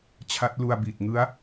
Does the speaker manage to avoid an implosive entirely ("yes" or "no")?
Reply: yes